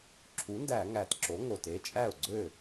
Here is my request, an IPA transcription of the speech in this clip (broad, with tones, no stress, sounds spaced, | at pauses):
ǁʰ u˩˥ n d æ˧˩˧ ŋ æ˨˩ t ǁ o˩˥ ŋ o˨˩ t e˦˥ t͡ʃʼ æ˥˩ ʊ̯ ɡ͡ǀ ø˥˩